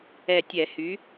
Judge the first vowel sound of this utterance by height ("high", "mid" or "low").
mid